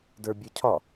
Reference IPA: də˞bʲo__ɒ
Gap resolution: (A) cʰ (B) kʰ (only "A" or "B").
A